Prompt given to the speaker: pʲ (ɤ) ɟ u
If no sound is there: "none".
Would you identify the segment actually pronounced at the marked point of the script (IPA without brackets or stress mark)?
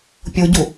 o